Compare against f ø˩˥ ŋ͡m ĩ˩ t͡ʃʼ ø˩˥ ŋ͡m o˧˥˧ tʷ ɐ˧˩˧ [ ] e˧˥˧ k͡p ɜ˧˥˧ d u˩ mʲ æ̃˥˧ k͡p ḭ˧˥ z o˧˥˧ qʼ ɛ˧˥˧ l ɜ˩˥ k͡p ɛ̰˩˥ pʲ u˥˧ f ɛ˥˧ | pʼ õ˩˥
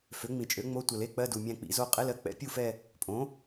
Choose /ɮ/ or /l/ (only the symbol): l